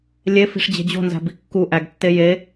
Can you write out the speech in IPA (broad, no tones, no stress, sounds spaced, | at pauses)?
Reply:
lʲ e f i̤ ʂ d͡ʑ e̤ d͡ʑ o̤ n z æ̤ b i kː u ʔ æ ɡ tː e j e